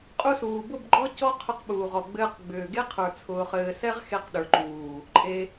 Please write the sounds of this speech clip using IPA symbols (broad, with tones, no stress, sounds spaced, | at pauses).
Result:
qʼ u˧ s uː˨ b ʊ˦˨ b ɡ͡ǃ ɔ˦ c ɔ˦ qʰ ʊ˧ q ɓ uː˨ ʁ ɔ˨ ɡ͡b ɘː˧ q ɡ͡b ʏː˨ ɡ e˦ qʰ ə˞˨ t͡sʰ ʊː˧ χ ɘː˧ s ɛ˦ ʁ x e˧ q ɗ ə˞˨ ǃ uː˨ | ǃʼ e˧